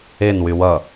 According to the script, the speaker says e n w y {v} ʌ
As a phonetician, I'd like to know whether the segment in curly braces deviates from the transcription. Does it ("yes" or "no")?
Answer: yes